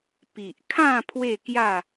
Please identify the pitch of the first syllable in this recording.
low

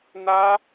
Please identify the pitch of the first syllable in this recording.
high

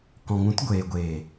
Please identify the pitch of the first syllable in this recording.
low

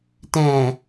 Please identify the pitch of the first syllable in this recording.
low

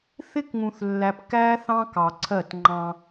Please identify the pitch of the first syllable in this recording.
high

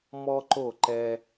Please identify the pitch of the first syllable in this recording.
high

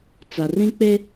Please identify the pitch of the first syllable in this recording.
low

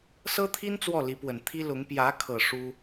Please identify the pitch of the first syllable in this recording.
high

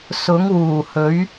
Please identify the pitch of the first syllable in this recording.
rising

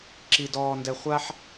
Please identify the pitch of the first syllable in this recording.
high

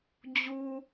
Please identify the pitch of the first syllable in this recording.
low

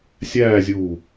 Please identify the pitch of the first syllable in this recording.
falling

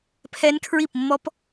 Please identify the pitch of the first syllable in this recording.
high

